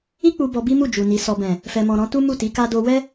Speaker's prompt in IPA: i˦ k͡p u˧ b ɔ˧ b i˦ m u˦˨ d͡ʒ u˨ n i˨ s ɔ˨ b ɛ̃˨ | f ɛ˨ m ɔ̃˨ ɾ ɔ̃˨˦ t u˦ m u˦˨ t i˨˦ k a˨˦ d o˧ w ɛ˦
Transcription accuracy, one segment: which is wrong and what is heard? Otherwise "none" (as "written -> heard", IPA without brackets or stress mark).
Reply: a˨˦ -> a˦